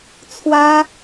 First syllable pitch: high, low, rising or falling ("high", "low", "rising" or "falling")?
high